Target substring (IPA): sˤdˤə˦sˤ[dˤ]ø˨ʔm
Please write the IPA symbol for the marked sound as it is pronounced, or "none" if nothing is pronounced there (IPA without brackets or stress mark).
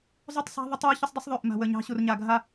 ðˤ